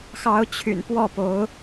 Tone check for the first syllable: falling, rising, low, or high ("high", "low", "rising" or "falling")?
rising